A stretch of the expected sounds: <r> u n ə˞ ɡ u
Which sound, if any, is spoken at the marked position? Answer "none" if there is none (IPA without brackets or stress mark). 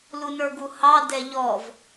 l